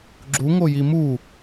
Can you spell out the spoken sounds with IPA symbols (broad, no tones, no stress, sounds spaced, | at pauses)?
ɡ͡ǁ u ŋ o j i m u